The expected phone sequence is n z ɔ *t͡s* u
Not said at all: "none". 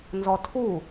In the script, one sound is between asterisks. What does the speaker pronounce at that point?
tʰ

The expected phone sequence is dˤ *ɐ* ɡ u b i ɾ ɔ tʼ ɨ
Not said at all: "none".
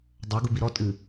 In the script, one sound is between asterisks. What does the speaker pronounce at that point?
ɐ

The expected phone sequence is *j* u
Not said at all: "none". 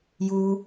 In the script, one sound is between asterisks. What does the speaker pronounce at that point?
j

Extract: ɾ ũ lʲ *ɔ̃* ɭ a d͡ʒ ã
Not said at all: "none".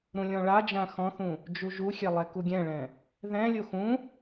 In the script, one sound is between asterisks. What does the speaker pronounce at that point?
ɔ̃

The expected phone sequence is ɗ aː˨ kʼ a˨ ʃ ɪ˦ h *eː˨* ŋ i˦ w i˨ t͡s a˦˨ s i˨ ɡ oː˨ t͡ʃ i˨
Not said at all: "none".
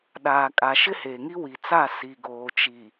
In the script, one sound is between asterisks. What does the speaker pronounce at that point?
eː˨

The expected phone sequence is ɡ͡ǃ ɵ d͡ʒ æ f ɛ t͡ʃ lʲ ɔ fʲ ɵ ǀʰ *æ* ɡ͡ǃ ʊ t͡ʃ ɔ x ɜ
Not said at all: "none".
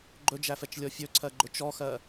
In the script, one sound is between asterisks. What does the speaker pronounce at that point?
ɜ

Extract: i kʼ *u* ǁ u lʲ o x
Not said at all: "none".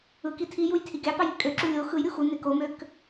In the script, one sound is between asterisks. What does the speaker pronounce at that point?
ø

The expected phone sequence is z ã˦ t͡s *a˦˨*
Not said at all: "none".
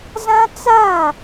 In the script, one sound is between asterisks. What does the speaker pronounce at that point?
a˦˨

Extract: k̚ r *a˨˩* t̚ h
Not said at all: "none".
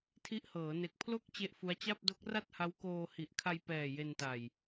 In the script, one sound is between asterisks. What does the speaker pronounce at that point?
a˥˩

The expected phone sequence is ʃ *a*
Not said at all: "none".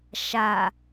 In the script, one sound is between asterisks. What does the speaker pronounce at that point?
a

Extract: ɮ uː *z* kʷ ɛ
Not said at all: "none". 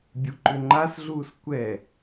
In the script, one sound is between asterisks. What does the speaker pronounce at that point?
s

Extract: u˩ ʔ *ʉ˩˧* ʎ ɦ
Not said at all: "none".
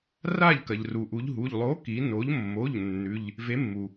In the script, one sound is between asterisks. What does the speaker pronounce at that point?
u˩˧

